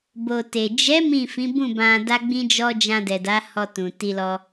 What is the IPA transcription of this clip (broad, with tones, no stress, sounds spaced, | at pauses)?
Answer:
b o˨ t e˨ d͡ʒ ɛ˨˦ m ĩ˦˨ f ĩ˨˦ b ũ˦˨ b ã˧ d a˦ ɡ͡b ĩ˦ d͡ʒ ɔ˦ d͡ʒ ã˧ d ɛ˨ d a˨˦ h ɔ˧ t ũ˨ t i˧ l ɔ˧